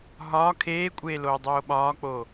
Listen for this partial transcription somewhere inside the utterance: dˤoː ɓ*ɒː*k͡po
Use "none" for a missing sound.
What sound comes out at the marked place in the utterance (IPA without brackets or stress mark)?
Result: ɒː